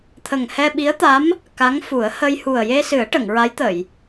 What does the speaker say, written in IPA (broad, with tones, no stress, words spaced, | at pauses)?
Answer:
t̪ʰə˨˩ŋhɛ˧ɓi˧˥ə̯t̪a˧˥m | ka˧˥ŋfu˨˩˦ə̯ hə˧jhu˨˩ə̯ je˧sɨ˨˩˦ə̯ʈə˨˩˨ŋ ɹa˧˥jt̪ə˨˩˨j